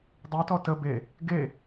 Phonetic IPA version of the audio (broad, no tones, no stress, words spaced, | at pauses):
dˤytɔ tə be | ɡe